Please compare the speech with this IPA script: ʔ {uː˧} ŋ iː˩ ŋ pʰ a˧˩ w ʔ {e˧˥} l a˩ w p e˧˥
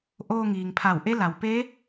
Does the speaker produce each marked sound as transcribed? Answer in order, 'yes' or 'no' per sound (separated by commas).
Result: no, yes